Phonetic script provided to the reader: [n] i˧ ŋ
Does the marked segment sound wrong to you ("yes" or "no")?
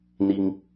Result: no